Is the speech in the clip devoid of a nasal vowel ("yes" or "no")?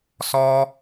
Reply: yes